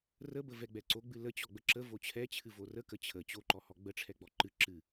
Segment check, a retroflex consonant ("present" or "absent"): present